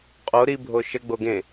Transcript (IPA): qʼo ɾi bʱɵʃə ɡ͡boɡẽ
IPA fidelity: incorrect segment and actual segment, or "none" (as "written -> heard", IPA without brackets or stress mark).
ɵ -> o